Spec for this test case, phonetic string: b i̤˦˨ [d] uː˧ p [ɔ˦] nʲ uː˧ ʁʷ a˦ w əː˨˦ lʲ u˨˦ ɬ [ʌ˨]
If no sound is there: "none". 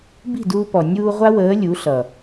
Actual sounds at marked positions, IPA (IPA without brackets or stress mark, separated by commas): d, ɔ˨, ʌ˨